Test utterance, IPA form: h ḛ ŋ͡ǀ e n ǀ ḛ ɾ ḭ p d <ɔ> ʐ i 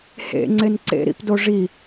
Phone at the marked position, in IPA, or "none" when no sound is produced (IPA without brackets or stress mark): o